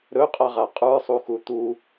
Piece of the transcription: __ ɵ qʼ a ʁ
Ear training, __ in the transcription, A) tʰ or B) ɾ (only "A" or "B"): B